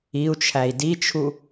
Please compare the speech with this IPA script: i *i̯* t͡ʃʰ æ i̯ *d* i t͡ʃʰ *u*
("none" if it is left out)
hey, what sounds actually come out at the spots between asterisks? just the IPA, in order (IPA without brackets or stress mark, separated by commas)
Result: u̯, d, u